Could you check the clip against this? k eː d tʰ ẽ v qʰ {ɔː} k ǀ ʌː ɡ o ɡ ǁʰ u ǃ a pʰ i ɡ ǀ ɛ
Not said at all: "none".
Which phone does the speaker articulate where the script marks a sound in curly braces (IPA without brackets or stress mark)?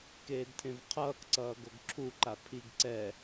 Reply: ʌː